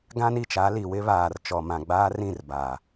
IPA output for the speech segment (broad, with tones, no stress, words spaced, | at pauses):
ɡã˦ni˨t͡ʃa˨˦li˨ wɪ˦βaː˨r t͡ʃɔ˨mã˨ ɡ͡baː˦rĩ˦˨rbaː˨